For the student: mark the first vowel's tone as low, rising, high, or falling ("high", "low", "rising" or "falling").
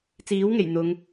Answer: rising